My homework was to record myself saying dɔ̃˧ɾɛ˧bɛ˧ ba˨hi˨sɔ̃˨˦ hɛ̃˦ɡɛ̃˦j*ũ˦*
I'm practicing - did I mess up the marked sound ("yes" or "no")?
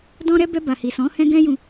yes